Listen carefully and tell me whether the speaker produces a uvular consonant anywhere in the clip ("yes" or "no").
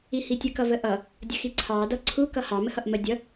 no